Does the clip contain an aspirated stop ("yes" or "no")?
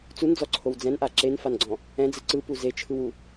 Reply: yes